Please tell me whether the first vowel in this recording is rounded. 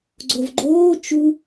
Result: yes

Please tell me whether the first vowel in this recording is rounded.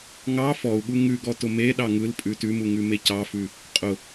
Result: no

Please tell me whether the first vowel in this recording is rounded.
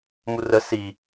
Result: yes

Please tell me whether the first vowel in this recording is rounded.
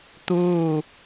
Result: yes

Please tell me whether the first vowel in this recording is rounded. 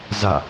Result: no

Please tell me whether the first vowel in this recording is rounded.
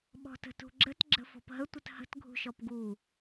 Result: yes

